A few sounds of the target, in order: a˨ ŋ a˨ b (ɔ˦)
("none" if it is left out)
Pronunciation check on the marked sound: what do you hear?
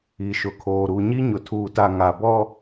ɔ˦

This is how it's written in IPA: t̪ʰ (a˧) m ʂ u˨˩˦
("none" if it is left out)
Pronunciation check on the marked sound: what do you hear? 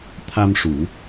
a˧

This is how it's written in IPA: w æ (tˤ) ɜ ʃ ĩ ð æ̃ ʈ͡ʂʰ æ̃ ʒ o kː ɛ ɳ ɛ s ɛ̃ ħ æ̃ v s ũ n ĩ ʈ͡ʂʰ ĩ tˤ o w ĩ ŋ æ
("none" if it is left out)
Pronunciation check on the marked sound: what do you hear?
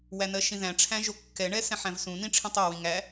n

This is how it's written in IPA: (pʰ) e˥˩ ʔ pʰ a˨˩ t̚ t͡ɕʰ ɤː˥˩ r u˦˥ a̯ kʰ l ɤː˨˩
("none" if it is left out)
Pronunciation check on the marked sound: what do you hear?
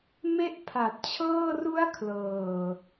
m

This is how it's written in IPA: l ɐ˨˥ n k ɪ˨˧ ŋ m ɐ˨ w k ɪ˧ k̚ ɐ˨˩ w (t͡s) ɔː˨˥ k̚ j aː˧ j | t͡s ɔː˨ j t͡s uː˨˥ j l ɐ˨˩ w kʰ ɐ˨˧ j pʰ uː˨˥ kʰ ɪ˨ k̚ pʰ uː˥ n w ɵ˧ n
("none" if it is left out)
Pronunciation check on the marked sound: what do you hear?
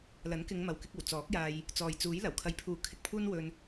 t͡s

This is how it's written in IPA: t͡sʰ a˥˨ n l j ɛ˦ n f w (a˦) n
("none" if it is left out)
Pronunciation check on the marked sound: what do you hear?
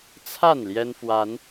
a˨˦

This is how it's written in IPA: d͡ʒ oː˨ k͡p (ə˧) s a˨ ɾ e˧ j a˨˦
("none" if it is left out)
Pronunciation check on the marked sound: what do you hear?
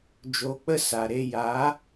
ə˧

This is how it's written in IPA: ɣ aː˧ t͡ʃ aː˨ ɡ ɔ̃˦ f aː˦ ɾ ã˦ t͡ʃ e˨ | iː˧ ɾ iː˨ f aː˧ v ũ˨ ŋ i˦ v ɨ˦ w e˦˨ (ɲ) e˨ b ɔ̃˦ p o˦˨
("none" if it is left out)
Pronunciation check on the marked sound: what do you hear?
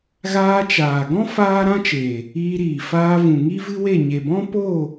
ɲ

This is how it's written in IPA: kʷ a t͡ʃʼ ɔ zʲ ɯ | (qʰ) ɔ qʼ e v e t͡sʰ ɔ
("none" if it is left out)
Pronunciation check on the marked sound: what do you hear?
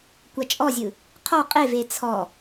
qʰ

